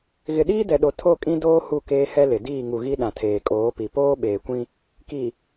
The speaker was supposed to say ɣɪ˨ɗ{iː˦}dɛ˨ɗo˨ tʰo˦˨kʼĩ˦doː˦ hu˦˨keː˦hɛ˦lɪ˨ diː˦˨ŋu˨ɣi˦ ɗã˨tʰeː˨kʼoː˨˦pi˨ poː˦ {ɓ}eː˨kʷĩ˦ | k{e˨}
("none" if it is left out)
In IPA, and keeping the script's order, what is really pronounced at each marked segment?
iː˦, ɓ, i˨

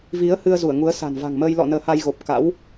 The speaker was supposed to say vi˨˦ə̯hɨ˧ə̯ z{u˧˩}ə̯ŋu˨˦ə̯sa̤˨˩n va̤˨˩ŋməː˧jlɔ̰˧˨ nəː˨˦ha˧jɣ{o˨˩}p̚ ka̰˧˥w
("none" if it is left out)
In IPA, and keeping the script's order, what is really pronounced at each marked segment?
u˧˩, o˨˩

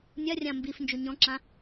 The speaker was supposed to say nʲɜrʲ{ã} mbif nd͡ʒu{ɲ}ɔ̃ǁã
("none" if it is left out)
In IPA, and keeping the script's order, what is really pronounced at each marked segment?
ã, ɲ

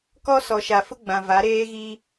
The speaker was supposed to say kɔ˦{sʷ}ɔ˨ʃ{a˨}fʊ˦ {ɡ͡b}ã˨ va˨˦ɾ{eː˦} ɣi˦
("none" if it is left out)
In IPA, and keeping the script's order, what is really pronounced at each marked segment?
s, a˨, ɡ͡b, eː˦

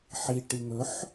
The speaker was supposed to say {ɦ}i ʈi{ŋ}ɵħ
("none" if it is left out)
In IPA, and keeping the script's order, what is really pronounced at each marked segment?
ħ, ŋ

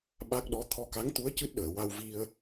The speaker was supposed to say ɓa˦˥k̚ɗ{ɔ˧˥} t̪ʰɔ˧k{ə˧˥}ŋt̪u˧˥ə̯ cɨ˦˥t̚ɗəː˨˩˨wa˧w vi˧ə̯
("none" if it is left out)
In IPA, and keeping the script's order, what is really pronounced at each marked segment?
ɔ˧˥, a˧˥

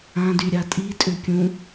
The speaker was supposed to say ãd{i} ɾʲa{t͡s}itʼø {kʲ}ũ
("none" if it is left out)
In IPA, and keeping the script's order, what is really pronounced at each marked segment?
y, tʼ, kʲ

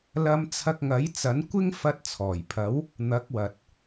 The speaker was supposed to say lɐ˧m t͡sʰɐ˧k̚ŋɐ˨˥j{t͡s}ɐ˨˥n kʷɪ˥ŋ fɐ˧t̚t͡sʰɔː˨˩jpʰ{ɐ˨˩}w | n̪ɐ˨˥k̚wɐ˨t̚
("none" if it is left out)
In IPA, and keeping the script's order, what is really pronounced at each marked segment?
t͡s, ɐ˨˥

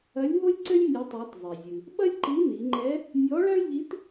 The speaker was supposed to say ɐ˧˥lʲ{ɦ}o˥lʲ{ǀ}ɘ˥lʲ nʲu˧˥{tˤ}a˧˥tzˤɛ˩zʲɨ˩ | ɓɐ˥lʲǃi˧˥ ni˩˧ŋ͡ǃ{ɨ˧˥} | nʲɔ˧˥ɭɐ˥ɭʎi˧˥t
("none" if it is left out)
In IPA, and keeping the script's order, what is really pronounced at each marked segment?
ɦ, ǀ, tˤ, ɛ˧˥

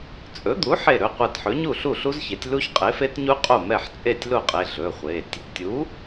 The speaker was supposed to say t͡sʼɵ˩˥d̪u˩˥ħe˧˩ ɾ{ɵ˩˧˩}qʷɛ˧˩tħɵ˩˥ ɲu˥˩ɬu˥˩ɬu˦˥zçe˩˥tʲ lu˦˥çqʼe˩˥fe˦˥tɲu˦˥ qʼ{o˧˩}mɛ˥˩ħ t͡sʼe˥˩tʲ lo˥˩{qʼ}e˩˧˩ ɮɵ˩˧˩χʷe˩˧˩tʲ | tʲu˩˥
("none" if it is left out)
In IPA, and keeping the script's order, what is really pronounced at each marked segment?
ɵ˩˧˩, o˥˩, qʼ

